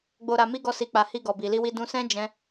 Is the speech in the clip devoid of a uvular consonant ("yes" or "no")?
yes